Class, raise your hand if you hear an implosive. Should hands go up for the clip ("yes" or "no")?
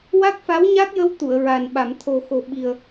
yes